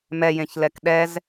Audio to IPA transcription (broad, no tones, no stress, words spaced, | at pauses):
mɛjẽçlɛk ɗɛz